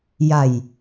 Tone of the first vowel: low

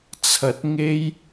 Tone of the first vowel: rising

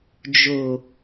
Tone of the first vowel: low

